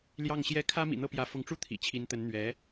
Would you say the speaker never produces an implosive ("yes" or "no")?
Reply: yes